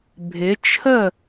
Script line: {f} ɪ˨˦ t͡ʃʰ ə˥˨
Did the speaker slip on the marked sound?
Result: yes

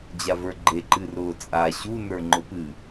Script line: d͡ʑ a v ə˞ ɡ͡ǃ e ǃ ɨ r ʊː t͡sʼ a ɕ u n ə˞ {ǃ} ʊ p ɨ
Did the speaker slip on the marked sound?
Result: yes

